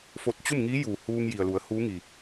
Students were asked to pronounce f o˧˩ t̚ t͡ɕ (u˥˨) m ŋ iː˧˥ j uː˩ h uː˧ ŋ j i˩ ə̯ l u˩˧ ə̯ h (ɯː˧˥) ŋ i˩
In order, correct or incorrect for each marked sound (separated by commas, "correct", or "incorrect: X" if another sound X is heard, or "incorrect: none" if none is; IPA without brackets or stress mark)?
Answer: correct, incorrect: uː˧˥